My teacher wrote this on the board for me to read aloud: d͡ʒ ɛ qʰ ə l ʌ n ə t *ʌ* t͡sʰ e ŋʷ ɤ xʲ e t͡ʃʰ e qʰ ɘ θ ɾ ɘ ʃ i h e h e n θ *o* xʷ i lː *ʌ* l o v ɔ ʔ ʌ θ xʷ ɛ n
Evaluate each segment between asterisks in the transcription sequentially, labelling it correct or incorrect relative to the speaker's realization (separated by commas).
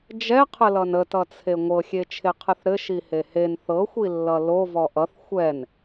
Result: correct, incorrect, correct